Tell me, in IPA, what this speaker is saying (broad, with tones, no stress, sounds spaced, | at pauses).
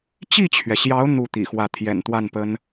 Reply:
t͡ɕ i˥˩ t͡ɕʰ ɥ ɛ˩ ɕ j ɑ˧˥ ʊ̯ n̪ u˥˩ t̪ ḭ˨˩ x w ä˥˩ t̪ʰ j ɛ̰˨˩ n t̪ w a˥˩ n p ə˥ n